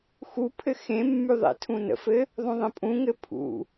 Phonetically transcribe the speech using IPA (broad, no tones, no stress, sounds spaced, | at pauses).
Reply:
x u pʰ ɘ x ẽ mː y ðˤ ḛ tʰ ũ n ə̰ f ɘ | ðˤ ũ ðˤ ə̃ pʼ ũ ŋ ɘ pʰ ṵ